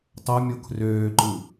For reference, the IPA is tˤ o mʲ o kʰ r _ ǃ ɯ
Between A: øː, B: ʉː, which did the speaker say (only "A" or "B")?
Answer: A